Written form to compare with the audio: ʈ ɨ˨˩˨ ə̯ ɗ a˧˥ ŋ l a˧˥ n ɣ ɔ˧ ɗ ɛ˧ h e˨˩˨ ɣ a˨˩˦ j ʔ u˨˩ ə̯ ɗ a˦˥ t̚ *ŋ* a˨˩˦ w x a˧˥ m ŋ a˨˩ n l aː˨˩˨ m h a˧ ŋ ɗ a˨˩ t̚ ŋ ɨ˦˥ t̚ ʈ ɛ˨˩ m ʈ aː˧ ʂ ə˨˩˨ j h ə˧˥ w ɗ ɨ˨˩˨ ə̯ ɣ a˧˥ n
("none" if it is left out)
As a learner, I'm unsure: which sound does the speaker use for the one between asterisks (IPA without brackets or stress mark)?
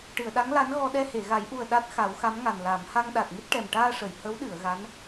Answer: x